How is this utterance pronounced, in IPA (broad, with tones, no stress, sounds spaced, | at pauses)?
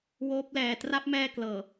w oː˦˥ p̚ l ɛː˨˩ t r a˦˥ p̚ m ɛː˧ k l ɤː˨˩